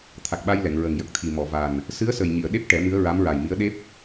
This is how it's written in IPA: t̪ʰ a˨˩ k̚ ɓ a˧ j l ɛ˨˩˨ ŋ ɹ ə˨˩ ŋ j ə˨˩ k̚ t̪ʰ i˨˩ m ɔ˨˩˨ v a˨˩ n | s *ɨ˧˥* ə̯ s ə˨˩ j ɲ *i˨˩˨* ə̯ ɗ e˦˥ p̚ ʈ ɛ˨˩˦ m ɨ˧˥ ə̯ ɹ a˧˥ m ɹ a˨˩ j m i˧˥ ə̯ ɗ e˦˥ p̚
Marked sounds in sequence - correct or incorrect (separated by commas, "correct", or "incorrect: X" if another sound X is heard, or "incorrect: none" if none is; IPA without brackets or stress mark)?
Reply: correct, correct